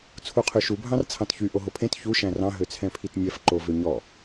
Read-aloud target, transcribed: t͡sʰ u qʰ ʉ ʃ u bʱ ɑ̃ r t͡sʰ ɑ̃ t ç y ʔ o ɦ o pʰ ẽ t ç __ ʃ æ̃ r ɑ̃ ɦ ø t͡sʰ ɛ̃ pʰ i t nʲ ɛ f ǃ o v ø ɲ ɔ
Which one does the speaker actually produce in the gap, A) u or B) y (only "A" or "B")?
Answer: A